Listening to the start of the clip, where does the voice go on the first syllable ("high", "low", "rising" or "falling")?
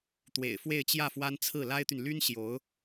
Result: low